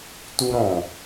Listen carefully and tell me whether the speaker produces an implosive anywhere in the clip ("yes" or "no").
no